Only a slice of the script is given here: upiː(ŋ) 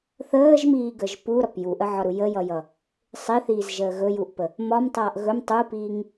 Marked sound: correct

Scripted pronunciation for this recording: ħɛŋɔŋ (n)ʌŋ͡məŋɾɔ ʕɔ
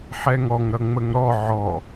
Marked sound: incorrect: ɾ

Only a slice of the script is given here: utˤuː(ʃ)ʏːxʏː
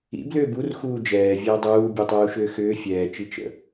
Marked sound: correct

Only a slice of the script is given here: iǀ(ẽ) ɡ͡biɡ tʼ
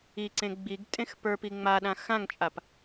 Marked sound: correct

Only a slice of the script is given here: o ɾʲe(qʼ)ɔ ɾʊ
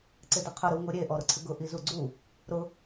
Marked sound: incorrect: ʔ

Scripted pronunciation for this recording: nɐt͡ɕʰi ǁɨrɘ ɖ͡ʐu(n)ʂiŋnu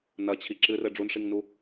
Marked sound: correct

